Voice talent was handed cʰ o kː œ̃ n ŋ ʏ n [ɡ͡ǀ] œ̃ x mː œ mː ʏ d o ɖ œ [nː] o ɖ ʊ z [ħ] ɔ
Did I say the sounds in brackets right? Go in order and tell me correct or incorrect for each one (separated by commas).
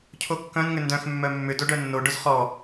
incorrect, correct, incorrect